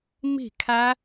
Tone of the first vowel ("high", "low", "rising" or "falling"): falling